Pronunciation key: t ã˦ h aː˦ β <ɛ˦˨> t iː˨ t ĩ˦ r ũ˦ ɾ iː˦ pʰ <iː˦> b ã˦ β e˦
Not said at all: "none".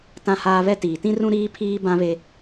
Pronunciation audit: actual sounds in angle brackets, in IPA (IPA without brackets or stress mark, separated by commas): ɛ˦, iː˦